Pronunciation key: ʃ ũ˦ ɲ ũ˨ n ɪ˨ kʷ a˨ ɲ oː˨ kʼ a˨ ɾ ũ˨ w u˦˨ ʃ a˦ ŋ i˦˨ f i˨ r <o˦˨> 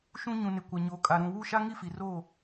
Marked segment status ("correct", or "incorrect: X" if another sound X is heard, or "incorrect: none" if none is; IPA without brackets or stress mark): correct